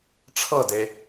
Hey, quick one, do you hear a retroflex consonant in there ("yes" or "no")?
yes